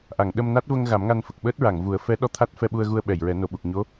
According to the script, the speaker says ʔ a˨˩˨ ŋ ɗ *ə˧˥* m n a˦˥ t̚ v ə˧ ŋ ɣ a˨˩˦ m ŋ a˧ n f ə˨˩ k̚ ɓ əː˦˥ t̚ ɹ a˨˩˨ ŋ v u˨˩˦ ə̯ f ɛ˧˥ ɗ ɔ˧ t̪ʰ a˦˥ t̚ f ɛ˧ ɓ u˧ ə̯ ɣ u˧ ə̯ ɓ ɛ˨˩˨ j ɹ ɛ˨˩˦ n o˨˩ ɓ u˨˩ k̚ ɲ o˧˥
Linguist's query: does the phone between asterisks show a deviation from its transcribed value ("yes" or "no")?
yes